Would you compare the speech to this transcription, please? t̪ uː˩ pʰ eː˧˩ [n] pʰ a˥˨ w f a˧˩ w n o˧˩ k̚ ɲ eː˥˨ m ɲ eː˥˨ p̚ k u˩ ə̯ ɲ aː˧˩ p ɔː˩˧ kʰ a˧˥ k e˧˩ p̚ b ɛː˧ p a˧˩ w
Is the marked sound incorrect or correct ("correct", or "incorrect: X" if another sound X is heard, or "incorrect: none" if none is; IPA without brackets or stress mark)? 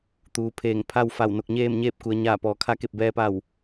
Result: incorrect: ŋ